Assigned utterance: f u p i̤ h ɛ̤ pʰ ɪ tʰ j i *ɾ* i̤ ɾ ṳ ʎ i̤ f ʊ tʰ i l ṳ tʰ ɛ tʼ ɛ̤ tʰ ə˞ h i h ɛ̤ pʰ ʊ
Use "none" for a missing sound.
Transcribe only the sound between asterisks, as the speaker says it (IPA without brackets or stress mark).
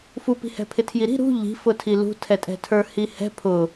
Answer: ɾ